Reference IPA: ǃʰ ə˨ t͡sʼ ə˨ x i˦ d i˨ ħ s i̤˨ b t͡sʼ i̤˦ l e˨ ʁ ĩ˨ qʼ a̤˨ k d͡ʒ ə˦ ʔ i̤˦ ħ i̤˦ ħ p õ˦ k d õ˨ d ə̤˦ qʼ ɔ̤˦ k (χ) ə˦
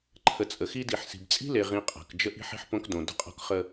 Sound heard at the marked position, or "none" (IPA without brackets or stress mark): χ